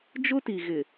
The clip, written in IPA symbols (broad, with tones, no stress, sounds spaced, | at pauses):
d͡ʒ ʊ˦ t i˨ ɣ ɪ˨